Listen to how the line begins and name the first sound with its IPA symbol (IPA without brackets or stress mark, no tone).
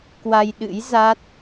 k